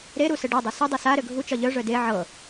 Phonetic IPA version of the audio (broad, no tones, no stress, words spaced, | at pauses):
ɾeɾu sɘɖɤdˤœ sœdˤe sa ɾɘɡʱut͡ʃɒ ʎœʐœ de ʕɤ